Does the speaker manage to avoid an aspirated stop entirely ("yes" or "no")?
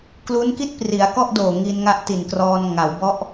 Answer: yes